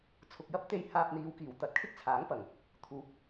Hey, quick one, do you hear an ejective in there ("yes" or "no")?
no